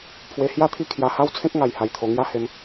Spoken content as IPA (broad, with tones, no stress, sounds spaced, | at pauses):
pʰ w e˧ h j a˥˧ t̪ʰ i˥˧ kʰ j a˧ h a˦ w t͡sʰ ẽ˦ k̚ ŋ a˧ j h a˧ j t̪ʰ o˧ ŋ j a˦ h e˧ m